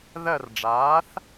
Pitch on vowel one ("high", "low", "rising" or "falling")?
falling